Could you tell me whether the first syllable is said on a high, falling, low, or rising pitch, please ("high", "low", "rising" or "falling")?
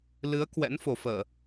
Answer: rising